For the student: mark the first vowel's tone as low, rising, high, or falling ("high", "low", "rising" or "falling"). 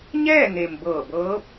falling